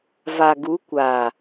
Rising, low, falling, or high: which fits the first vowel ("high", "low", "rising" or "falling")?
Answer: low